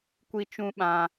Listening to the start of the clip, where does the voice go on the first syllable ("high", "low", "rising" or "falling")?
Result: high